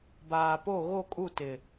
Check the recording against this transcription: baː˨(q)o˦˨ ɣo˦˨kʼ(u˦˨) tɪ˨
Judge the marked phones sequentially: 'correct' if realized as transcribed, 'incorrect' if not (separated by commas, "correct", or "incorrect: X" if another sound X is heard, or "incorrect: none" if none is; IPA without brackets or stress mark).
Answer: incorrect: p, correct